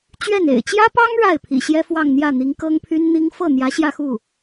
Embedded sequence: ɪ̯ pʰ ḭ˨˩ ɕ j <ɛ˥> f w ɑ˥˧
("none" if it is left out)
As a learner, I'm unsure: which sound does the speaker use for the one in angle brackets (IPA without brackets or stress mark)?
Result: ɛ˥